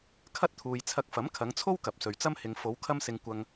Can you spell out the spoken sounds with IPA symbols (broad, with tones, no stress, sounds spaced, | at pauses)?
kʰ ɐ˥ t̚ t̪ʰ uː˨ j t͡sʰ ɐ˧ k̚ f ɐ˨˥ m kʰ ɐ˨˧ ŋ t͡sʰ o˥ w k ɐ˨ p̚ s ɵ˨ ɥ t͡s ɐ˥ m h ɪ˨ ŋ f o˨˧ w kʰ ɐ˥ m s ɪ˧ ŋ kʷ ɐ˧ ŋ